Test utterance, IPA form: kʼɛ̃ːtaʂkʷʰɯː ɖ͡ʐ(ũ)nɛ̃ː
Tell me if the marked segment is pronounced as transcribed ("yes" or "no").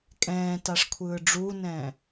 no